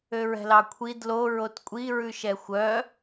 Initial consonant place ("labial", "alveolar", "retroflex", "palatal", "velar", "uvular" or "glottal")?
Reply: alveolar